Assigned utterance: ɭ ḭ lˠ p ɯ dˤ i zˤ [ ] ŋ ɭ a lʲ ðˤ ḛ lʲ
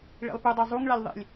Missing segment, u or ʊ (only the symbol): u